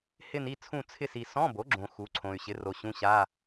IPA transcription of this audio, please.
h ɪ˦˨ n i˦˨ t͡sʰ ũ˦˨ t͡sʰ ɪ˦˨ s i˨ s ɔ̃˧˥˧ b o˩˥ ɡ͡ǁ õ˨ x u˩˥ ǀʰ õ˨ y̯ ɕ ɪ˩˥ r o˨ ɕ ũ˧˥˧ ɕ a˧˥˧

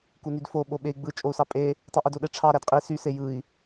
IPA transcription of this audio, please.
k u n y d f o ɓ o ɓ e i̯ ɡ͡b ɯ t͡ʃʼ o u̯ s ɑ pʼ e | tˤ i ʔ i d o ɗ e ʈ͡ʂʰ ɑ ɾ æ d qʼ i s y s e j ɯ i̯

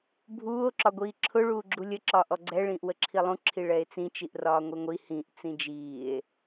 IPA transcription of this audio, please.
bʱ uː o̯ ǁ ɒ ɡʷ iː ǁʰ ʊ ɭ uː ɡ͡ǁ u lʲ ə ǁ ɒː ʔ ɔ ɡ͡ǀ ɛ ɭ ĩː ʔ w ə ǁʰ i lˠ ũ ǁʰ i ɭ ɛ e̯ t͡s ĩ t͡ʃ i ʔ r ɒː ŋʷ i ŋʷ i h ĩ ʔ t͡s ĩ d͡ʒ iː e̯

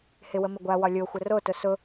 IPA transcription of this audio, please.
h ɪ w ə m ɪ ɡʷ a w ɒ lʲ o xʷ ə r o t ʊ s ʊ

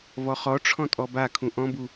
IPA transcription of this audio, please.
v ɔ χ ɔ ʈ͡ʂʰ ɔ̃ tʼ ɔ b a kʰ ũ ʔ ɔ̃ b u

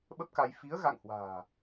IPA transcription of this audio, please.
ɓ ə˦˥ p̚ k a˧ j f i˨˦ ə̯ ɣ a̰˧˨ ŋ h w a̤ː˨˩

